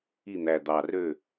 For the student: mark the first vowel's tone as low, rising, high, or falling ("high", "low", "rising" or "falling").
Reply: falling